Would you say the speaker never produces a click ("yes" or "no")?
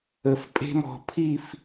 yes